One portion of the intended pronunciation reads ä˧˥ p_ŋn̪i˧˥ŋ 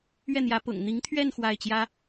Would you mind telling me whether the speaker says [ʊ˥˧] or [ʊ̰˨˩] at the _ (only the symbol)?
ʊ̰˨˩